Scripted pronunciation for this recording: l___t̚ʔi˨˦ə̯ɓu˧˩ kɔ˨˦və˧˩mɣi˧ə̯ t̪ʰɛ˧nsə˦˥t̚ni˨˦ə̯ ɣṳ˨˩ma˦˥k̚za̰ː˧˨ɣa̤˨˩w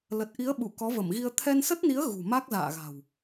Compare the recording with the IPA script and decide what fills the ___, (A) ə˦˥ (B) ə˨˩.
B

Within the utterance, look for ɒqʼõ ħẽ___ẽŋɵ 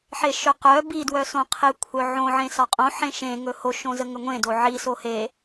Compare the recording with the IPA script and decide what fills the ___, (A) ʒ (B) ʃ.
B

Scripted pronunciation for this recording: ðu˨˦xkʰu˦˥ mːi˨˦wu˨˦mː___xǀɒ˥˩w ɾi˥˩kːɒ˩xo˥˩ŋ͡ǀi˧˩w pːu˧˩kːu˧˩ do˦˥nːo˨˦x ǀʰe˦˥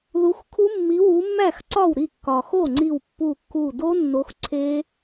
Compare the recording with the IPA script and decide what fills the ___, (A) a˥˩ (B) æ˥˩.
B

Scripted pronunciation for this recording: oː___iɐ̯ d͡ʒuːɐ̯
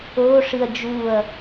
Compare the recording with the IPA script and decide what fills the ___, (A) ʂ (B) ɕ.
A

